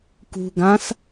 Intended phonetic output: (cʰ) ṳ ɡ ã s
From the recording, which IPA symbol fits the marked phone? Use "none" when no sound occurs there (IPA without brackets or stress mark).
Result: k